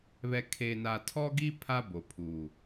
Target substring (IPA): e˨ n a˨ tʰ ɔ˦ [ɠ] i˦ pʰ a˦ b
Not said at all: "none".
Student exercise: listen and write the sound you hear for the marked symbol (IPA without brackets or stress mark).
ɡ